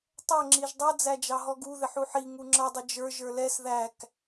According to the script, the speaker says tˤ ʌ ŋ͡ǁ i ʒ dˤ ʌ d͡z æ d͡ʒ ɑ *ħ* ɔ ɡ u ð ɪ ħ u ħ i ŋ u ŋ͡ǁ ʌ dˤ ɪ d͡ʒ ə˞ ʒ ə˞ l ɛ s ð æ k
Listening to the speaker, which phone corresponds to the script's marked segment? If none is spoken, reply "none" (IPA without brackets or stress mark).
ɦ